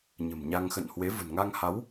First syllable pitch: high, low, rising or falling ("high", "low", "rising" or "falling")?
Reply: low